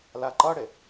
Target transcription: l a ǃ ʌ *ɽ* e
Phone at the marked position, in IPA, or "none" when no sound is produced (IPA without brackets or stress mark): ɽ